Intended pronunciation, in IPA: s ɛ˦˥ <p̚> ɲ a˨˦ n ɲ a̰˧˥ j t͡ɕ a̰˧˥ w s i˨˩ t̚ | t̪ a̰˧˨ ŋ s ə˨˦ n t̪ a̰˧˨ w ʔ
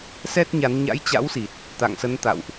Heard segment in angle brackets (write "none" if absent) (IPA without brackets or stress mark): t̚